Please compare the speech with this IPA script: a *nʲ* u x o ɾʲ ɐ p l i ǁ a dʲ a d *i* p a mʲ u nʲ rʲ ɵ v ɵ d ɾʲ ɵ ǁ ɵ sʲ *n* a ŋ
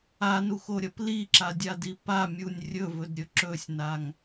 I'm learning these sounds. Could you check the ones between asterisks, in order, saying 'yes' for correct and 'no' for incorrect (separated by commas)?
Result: no, yes, yes